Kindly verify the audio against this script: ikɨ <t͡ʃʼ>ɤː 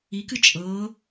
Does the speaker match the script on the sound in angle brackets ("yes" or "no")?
yes